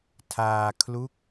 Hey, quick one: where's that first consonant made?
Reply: tongue tip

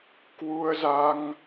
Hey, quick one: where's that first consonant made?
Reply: velum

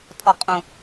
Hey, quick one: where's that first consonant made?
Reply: tongue tip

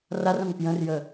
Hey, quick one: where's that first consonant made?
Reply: tongue tip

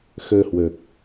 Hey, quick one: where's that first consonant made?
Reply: velum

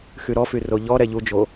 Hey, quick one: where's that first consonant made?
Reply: velum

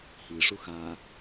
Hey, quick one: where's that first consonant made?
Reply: throat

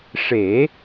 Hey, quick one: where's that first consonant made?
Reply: retroflex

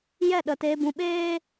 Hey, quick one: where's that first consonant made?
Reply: palate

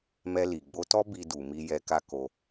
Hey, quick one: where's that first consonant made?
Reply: lips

